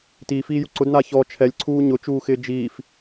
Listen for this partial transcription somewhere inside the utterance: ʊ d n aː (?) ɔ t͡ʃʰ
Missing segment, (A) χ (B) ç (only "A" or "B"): B